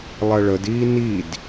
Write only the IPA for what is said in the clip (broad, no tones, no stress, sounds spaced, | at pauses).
lˠ ɜ ɭ ə d iː n i d